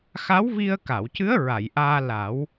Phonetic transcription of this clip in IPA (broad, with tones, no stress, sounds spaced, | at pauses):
x a˧˥ w v i˧ ə̯ k a˨˩˨ w c ɨ˧˥ ə̯ ɹ a˨˩˨ j ʔ aː˧ l a˨˩˦ w